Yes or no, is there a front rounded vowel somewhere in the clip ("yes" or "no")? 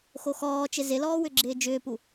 yes